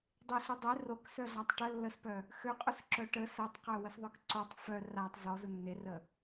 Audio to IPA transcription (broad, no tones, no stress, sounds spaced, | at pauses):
dˤ e ɬ u dˤ e r o k s œ ɮ a tˤ ʈ ə lː ə s p œ | x ø qʼ u s ǁ œ ʈ ə s ə tˤ q œ w ə s ðˤ œ k ǀ o tˤ f œ r a tˤ z ɔ z u nː e r ə